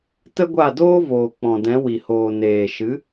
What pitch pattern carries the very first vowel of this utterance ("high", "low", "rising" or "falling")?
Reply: high